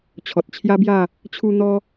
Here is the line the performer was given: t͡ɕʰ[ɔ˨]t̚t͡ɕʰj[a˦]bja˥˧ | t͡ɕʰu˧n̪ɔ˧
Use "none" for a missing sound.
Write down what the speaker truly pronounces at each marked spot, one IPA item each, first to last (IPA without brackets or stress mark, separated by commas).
ɔ˨, a˦